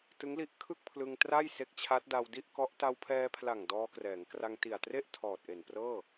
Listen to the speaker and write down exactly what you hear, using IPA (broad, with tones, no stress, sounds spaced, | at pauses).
t ɯ˦˥ ŋ l i˦˥ ʔ kʰ ɯ˥˩ k̚ pʰ l ɯ˧ ŋ t r a˥˩ j s e˦˥ k̚ t͡ɕʰ a˦˥ t̚ d a˧ w d i˥˩ ʔ k ɔ˦˥ ʔ t a˧ w pʰ ɛː˧ pʰ l a˨˩ ŋ d ɔː˧ k r ɛː˩˦ ŋ k r a˧ ŋ t i˨˩ a̯ t r e˥˩ ʔ tʰ ɔː˨˩ t̚ ʔ e˨˩ n p r ɤː˥˩